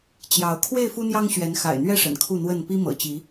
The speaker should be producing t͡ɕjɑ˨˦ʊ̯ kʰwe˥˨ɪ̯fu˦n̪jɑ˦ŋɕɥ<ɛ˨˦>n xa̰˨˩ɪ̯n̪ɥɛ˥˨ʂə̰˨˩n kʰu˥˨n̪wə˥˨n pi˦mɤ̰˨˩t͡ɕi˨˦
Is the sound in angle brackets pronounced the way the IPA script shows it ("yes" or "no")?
yes